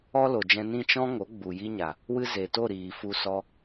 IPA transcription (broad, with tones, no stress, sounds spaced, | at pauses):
ɔ˦ l o˨ d͡ʒ ɛ̃˧ n ĩ˦˨ t͡ʃ ɔ̃˦ ŋ o˨˦ ɡ͡b u˨ j i˦ ɲ a˨ | w ɨ˦ z e˨ t o˦˨ ɾ iː˨ f u˧ s ɔ˦